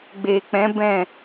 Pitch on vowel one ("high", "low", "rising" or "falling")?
low